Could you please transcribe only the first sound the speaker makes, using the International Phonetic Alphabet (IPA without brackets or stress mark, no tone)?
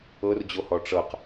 ɤ